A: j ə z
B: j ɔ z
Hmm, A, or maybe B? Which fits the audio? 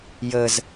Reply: A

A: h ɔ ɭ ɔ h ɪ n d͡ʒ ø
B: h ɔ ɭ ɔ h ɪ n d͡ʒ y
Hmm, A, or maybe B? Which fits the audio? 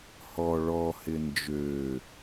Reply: A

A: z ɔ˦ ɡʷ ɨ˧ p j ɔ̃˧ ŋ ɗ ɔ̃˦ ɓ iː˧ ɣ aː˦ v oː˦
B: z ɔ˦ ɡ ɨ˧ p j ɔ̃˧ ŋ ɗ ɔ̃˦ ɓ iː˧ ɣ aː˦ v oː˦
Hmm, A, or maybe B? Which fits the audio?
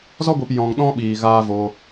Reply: A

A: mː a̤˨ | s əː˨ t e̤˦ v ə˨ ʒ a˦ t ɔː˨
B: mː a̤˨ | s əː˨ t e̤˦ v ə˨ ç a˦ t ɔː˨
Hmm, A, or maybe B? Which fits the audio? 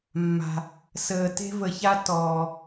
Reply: B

